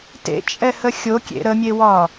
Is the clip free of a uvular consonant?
yes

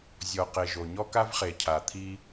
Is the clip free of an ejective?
yes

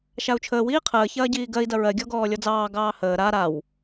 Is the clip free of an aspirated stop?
no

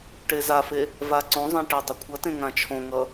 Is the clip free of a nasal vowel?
no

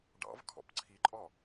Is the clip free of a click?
no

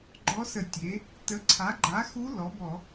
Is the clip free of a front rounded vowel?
yes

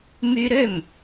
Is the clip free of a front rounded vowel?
no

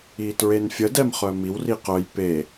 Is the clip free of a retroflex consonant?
yes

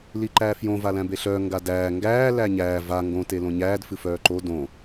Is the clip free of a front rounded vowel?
no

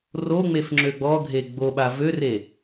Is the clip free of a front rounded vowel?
no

